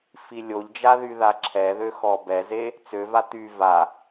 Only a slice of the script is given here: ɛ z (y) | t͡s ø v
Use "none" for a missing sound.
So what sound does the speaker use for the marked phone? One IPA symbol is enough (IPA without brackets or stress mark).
e